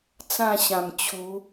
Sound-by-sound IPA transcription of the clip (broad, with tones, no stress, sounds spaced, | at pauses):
t͡s ã˥˧ ɕ ã˨˩ m t͡ɕʰ u˨˦